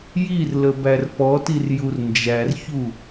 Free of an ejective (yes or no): yes